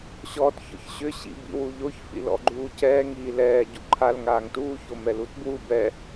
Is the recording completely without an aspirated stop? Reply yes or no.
no